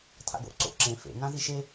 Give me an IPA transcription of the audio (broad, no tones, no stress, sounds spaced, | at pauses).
tʰ a̰ ɡ o̰ ǀ o̰ ǁ ẽ f ḛ ŋ ã z i ʃ e